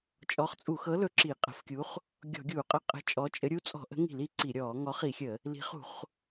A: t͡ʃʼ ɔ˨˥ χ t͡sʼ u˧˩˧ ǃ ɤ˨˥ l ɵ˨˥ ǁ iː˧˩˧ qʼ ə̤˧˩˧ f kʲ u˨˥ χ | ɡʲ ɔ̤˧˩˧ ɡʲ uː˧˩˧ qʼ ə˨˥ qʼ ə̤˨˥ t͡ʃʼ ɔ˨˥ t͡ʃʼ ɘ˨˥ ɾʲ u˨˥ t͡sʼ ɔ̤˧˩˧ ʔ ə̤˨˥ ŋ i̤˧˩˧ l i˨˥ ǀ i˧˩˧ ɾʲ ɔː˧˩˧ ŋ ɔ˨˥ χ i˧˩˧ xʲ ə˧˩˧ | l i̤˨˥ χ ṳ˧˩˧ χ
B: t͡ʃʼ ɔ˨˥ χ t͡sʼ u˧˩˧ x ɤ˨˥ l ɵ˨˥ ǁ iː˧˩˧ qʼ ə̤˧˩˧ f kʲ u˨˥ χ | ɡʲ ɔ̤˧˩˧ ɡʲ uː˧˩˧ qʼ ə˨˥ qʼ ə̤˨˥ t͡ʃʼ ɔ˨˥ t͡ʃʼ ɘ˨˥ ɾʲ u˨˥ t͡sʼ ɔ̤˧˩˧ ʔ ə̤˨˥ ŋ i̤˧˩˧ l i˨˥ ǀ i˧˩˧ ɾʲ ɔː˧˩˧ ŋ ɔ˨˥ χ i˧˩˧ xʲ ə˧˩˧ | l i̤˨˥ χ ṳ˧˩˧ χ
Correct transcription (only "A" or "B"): B